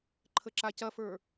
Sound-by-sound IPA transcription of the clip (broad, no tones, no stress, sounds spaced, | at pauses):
ǃʰ ə ǁ a c ɐ f ə˞